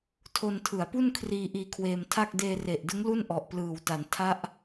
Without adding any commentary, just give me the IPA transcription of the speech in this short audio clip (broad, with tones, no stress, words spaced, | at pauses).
tʰo˧ntʰɯ˩˦a̯pu˥˩n kʰriː˧ ʔiː˧kʰweː˧mtʰa˥˩k̚ deː˧re˨˩ʔdɯ˦˥ŋ lu˥˩nʔɔ˨˩ʔplɯː˨˩wta˩˦n tʰa˦˥ʔ